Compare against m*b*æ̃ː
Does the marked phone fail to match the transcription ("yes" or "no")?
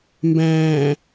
no